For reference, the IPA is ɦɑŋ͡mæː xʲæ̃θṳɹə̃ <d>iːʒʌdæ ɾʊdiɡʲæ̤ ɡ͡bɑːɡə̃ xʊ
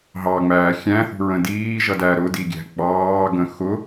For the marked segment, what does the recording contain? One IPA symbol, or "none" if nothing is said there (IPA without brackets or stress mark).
d